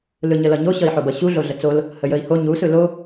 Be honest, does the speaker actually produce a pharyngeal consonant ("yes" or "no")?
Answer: yes